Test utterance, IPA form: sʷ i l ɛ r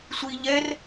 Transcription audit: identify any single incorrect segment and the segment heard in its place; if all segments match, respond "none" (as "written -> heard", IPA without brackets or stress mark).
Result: l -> ʎ